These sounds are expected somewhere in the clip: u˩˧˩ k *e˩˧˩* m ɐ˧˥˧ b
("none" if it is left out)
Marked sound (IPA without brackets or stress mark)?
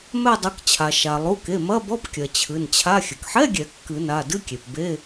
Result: e˩˧˩